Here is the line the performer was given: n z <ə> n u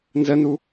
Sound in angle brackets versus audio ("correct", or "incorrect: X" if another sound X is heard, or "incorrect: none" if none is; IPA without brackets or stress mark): correct